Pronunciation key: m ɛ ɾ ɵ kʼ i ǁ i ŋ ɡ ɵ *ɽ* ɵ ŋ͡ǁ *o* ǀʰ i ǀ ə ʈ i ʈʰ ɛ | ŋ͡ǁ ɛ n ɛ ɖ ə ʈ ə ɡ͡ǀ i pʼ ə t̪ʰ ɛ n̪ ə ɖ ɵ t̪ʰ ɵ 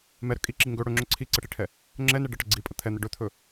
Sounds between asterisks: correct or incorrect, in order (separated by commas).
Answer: correct, incorrect